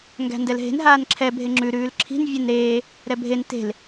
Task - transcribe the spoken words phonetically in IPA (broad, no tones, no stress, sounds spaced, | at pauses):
ŋ ɡ æ̤ n d ɛ l ɦ e̤ n ɦ aː n ǁʰ ɛ bʱ e ŋ͡ǁ ʉ ɾ ʉː l ǁʰ i̤ n vʲ ɛ n ɾ eː | ɾ ɛ bʱ e n t e̤ l